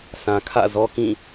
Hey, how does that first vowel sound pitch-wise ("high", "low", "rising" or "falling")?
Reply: low